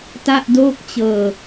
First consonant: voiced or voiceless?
voiceless